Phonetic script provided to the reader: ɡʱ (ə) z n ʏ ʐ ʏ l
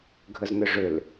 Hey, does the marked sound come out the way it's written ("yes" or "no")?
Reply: yes